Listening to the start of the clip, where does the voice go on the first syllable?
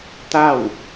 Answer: falling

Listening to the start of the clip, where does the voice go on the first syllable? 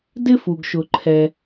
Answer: high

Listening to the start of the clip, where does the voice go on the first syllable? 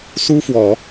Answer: high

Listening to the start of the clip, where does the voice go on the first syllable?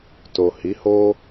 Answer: low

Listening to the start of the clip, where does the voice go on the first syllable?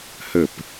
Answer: falling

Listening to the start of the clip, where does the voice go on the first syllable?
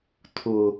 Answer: high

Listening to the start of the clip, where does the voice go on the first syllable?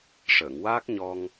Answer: low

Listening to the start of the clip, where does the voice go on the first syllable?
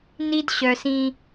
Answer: high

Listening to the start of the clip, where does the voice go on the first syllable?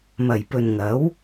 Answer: low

